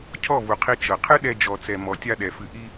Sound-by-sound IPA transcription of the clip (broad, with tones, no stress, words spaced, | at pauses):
cʰɔ˦˨vu˨qʰi˧ t͡ʃɤ˨qʰɨ˦ ɗɛ˧d͡ʒɔ˨t͡sɛ˨ mɔ˨ tʲa˧ɗɛ˨ fɨ˨ʔi˧